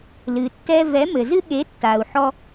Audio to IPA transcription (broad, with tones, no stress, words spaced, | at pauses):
lɨ˨tːɛ˧ vɛ˨˦mɘ˨zɨ˦ ɠe˨˦ tːa˨u̯ħɔ˧